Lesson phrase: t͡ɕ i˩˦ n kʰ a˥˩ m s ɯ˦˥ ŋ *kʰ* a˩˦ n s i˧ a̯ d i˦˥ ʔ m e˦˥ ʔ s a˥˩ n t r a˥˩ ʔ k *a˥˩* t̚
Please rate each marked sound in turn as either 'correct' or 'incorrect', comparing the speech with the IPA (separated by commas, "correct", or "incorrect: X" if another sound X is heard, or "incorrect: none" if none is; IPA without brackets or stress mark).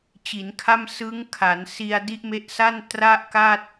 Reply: correct, correct